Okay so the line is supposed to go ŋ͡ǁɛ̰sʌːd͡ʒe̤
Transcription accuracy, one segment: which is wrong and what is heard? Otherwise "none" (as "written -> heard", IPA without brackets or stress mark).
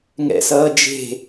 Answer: ŋ͡ǁ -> ŋ